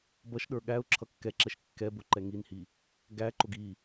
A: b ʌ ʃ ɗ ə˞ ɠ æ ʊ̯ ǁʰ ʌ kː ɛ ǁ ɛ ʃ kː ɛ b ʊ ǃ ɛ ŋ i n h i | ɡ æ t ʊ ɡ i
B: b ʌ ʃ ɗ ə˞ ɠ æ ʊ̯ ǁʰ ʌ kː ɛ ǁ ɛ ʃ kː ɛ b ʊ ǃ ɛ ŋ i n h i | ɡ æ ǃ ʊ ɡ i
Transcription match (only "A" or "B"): B